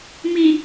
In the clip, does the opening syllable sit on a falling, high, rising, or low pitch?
low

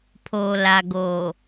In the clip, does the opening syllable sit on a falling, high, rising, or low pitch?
low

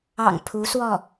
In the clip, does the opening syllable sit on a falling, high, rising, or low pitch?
low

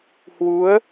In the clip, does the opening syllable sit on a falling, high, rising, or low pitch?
rising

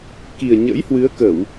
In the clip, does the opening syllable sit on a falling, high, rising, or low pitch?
low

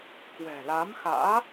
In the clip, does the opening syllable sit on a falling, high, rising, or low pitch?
low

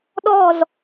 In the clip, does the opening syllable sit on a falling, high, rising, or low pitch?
falling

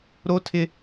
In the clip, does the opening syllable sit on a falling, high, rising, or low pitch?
high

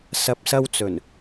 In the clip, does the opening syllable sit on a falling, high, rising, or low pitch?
rising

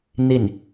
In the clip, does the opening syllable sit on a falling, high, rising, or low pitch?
falling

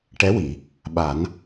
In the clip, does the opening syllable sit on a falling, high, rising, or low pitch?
rising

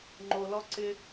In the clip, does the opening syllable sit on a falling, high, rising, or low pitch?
low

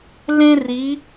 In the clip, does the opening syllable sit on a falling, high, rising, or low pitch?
high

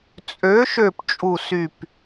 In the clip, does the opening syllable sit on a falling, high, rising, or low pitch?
rising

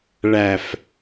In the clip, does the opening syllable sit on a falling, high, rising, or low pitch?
low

